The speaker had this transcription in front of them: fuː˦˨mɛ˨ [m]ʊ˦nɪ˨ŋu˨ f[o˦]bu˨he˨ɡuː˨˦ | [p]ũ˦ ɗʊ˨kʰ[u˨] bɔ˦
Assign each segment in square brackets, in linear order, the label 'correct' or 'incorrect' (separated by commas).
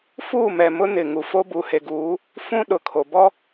correct, correct, incorrect, incorrect